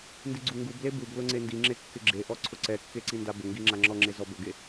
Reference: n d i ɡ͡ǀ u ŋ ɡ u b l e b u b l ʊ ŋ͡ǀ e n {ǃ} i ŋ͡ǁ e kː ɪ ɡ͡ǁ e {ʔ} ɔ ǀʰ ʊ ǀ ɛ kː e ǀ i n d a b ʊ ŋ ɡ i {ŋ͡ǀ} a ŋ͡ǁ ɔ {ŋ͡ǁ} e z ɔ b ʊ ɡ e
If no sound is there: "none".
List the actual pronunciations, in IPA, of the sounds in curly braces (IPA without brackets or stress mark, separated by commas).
d, ʔ, ŋ͡ǁ, ŋ͡ǁ